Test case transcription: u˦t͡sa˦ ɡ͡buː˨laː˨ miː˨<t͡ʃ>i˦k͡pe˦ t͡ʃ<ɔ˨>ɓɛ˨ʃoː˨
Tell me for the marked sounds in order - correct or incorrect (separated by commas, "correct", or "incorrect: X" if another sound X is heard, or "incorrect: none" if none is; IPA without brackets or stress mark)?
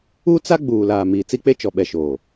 incorrect: t͡s, correct